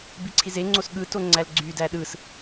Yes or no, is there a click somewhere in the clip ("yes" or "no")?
yes